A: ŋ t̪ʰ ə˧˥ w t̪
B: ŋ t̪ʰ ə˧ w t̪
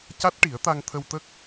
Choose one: B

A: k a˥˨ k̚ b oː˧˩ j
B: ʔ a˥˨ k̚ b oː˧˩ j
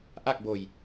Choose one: B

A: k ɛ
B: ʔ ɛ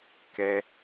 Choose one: A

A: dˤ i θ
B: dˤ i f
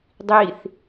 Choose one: A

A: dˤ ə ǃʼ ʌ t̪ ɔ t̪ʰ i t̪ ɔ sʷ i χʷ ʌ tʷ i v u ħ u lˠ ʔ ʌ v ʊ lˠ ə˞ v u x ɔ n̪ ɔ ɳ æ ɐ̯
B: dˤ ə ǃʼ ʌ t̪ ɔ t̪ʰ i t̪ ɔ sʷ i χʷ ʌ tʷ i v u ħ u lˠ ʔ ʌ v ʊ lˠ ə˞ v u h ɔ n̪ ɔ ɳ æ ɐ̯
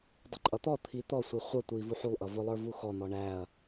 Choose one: A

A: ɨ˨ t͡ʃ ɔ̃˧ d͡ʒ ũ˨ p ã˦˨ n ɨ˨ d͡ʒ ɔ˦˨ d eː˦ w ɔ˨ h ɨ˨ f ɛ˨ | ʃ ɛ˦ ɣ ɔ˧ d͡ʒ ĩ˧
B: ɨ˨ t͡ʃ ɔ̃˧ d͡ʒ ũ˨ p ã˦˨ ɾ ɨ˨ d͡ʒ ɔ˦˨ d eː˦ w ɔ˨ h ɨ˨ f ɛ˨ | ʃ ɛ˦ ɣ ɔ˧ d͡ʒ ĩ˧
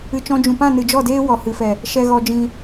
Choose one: A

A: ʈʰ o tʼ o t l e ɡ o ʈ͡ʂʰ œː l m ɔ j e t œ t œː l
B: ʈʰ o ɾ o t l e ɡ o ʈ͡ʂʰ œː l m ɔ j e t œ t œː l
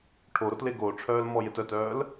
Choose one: B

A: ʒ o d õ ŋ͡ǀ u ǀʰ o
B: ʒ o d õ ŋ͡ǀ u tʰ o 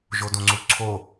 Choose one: A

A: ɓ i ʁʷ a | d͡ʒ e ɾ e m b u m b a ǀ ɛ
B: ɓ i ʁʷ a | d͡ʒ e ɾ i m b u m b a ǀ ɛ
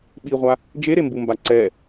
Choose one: A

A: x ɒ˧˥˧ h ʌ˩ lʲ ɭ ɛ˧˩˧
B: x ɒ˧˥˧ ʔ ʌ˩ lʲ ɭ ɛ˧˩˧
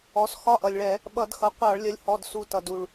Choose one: B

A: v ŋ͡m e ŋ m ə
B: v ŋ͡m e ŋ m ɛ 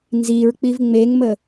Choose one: A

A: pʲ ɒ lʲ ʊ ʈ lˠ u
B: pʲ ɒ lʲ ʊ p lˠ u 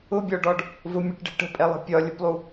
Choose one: B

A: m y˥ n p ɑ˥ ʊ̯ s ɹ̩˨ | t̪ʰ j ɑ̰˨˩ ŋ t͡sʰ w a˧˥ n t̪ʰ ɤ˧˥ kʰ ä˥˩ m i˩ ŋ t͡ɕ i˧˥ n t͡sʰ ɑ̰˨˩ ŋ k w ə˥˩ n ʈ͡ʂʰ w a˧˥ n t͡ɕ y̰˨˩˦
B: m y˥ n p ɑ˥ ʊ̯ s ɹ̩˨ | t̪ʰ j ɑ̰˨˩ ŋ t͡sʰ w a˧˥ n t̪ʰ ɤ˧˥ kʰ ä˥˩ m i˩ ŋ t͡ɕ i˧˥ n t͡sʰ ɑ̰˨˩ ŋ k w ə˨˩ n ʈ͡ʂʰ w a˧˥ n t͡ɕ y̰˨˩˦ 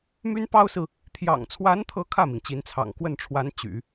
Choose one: A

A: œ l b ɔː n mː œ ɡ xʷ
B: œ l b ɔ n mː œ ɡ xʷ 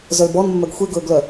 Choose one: B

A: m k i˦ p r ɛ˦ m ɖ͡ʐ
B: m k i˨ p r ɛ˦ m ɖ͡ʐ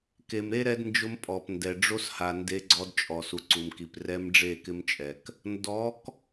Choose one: B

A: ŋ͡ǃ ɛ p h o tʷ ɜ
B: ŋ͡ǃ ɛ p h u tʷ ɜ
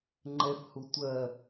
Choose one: B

